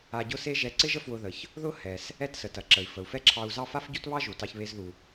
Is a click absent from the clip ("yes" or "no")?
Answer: no